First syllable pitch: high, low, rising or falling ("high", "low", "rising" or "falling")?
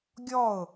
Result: falling